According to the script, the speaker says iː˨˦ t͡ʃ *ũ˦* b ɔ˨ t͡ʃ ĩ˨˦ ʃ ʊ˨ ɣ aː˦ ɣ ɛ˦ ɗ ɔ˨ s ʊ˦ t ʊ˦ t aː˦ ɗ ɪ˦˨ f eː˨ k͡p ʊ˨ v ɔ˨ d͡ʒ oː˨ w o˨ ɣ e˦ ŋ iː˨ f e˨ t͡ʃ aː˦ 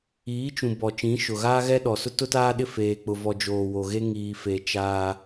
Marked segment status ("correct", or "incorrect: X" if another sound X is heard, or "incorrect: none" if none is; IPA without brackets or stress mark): incorrect: ũ˨